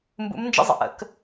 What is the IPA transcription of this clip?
m b ṵ˧˥ m n d͡ʒ ə̰˥ zˤ ə̰˩ ʔ ə̰˩˧ k

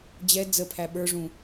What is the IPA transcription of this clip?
d͡ʑ ɛ d͡z ə pʰ æ ɓ ə˞ ʐ ũ

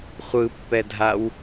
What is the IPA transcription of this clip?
χʷ ɯ pː ɛ dʱ a w

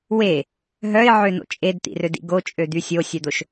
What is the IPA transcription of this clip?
w e | ɦ œ ɪ̯ ʕ ø n o̰ t͡ʃʼ e d t̪ ḭ r ø d ḭ ɡ o t͡ʃʼ ø d̪ y sʲ o sʲ œ d̪ o ʃ

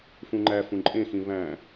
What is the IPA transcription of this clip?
f ũ ŋ͡ǃ æ f ũ ǃʼ ẽ x ĩ β æ̃

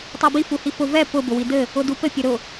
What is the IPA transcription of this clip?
tˤ ɜ b i f u h i f ʊ v ɛ p ʊ b ʊ w i d ɘ | ʊ d u p ɘ pʲ ʊ ɾ ʊ

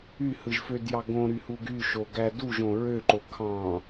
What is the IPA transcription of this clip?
y h ɯ ʒ f ø d j ɑ ɡ õ ɾ y h u ɡ y ʃ o ɡ æ d u ʒ õ ɹ ø ǃ o kʰ ɑ̃

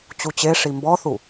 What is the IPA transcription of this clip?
t͡ɕ u t͡ɕ e ʂ i m b ɔ θ u

